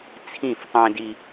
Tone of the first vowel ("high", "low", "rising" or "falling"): falling